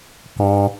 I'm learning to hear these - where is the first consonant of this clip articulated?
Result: velum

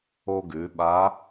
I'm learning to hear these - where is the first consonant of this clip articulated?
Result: velum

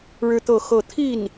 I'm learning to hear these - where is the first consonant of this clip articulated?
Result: retroflex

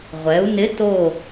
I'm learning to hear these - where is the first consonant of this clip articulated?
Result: uvula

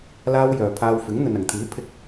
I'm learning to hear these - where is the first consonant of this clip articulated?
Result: tongue tip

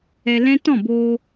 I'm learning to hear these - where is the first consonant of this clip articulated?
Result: tongue tip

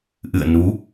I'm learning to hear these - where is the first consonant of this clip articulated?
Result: throat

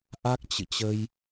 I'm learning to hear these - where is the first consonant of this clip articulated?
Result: throat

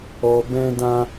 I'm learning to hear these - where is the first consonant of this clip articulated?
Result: lips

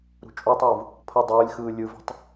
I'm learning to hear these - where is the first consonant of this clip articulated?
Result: tongue tip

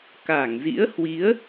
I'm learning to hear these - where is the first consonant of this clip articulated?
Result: velum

